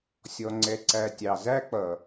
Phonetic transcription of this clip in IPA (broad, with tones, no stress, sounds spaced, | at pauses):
sʲ ɔ˨ ŋ͡ǀ ɛ˨ ǀ æ˨ tʲ ɑ˨ z æ˦ k͡p ʌ˨